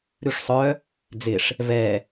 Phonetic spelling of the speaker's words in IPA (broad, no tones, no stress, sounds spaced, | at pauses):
ɾ ʉ ʂ sˤ œ | d͡z ɪ ʂ | v ɛ